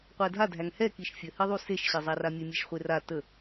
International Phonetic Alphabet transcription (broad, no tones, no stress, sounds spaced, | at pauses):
qʷ æ dʱ a dʱ æ ŋ h ɛ k i ʃ fʲ ə h i ðˤ u s e ʃ ɕ e zˤ a r a mʲ e mʲ e ʃ χʷ e r a t ə